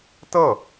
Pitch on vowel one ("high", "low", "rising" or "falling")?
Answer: falling